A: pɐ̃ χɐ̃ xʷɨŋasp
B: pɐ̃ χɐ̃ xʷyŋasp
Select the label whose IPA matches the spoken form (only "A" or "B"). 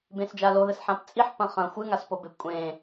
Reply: A